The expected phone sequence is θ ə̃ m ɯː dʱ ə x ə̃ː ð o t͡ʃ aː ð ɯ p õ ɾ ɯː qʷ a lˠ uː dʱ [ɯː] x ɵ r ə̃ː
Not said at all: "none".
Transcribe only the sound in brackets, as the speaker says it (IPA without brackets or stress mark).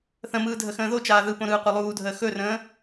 əː